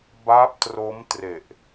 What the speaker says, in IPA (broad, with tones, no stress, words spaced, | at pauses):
ba˦˥p̚tro˦˥mtre˨˩ʔ